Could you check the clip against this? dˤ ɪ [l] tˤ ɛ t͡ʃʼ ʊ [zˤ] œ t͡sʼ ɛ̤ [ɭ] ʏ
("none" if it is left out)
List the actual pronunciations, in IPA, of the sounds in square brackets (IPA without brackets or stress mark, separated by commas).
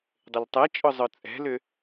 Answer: l, zˤ, l